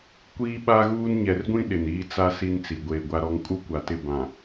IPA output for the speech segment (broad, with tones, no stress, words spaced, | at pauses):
kʷiː˦ɓa˦ɣuː˦n ɲɛ˨rɡʷĩ˦ ɗɪ˨niː˦ t͡sa˦ si˦nt͡si˨ ɡʷeː˨ɡʷa˦ɾɔ˦ŋ kʼu˦kʷa˨ tɪ˦˨ bã˨